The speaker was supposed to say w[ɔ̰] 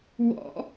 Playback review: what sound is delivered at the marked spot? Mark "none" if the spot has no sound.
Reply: ɔ̰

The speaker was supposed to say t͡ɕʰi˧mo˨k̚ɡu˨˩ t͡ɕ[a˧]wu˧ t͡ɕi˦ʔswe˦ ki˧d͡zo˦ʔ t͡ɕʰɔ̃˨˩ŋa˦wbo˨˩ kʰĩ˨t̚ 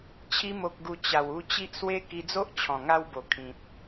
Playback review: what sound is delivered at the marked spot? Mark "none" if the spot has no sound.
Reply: a˨˩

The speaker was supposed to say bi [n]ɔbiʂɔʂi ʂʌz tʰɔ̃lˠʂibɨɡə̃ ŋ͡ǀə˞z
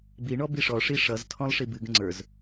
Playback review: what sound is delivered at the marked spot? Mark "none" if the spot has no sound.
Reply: ɳ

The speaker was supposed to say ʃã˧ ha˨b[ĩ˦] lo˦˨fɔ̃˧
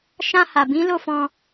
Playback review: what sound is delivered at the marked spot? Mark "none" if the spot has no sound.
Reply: ĩ˨˦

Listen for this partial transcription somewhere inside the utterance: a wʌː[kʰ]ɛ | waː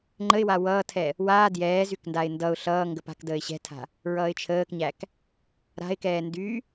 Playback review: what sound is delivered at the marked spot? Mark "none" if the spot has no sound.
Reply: tʰ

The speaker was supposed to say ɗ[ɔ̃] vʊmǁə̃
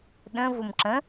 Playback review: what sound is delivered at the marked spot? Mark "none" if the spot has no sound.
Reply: ə̃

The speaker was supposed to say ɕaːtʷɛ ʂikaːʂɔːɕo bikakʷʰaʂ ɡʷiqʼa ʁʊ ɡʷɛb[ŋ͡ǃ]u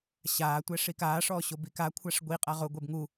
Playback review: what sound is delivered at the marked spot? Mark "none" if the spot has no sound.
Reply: ŋ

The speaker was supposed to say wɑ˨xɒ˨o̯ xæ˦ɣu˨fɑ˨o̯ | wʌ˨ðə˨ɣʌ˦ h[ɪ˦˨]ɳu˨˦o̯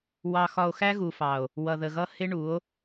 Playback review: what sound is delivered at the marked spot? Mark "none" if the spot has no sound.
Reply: ɪ˦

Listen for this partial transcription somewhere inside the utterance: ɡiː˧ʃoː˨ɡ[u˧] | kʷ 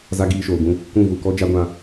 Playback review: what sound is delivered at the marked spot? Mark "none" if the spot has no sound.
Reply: ũ˧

